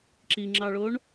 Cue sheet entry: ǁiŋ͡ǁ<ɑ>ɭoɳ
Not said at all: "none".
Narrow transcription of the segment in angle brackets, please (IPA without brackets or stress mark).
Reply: ɑ